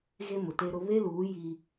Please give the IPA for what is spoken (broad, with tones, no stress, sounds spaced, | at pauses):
ɣ e˦ m ʊ˨ t e˦ ɾ ʊ˦ β e˦ l uː˨˦ j i˦